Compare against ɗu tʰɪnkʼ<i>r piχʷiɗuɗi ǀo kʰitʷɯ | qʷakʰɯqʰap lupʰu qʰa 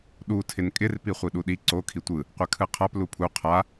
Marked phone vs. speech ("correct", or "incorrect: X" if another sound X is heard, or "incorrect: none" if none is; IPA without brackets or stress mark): incorrect: ɪ